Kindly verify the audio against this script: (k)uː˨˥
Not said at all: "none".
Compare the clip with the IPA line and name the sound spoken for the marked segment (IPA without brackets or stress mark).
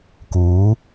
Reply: k